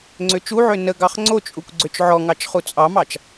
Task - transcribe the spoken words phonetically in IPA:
ŋ͡ǀ ø t͡ʃ u ʕ ø n ə ɡ ɑ χ ŋ͡ǀ o t͡ʃʼ u kʷ ɡ͡ǀ ø t͡ʃ ʕ ɔ ŋ ɑ t͡ʃ χ u t͡sʼ ɑ m ɑ t͡ʃ

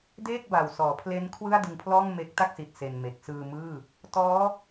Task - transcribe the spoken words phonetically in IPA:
d eː˥˩ k̚ b a˨˩ w s ɔː˩˦ pʰ l e˦˥ n kʰ w ɯ˥˩ a̯ d ɯ˧ ŋ pʰ l ɔː˥˩ ŋ m e˦˥ k̚ t a˥˩ k̚ s i˨˩ t̚ s e˧ n m e˨˩ k̚ s ɯː˧ m ɯː˥˩ | t ɔː˦˥

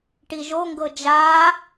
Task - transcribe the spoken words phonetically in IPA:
ʈ i ʒ o ŋ ɡ ɤ d͡ʒ aː

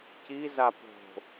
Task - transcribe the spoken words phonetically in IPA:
c i z a p o̤

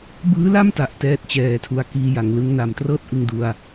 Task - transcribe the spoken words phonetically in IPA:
b ɯː˦˥ l a˥˩ m t a˨˩ ʔ t ɛː˥˩ t̚ t͡ɕ ɛː˧ tʰ u˦˥ a̯ k iː˧ j a˩˦ ŋ l ɯ˦˥ ŋ n a˨˩ m t r ɤː˥˩ t̚ ʔ ɯ˧ ŋ d u˧ a̯

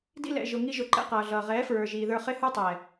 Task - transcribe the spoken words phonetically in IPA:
d ḭ˧ l ɛ̰˨ ʒ ʊ˨ ŋ i˧ ʒ ʊ˨ ǃ ɛ̰˧ q ʌː˨ ɮ ʌː˨ ʁ ɛː˨˦ f ɹ ə˞˨ ʒ iː˨ ð ə˞˧ χ ɪ˦ h ə˞˦ tˤ ɛː˨

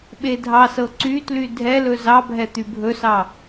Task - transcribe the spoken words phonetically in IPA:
ɓ e dʱ ɑ s ɤ ǀ y t l y dʱ ɛ l ɵ z ɑ bʱ ɛ t̪ y bʱ ɵ s ɑ

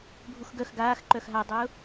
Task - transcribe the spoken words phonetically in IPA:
bʱ u x ɡ œ x ɡ aː x ǃ œ x ɦ a dˤ ʊː

